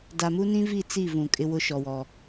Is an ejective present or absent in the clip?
present